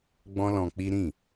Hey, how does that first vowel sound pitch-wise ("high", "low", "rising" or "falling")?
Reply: high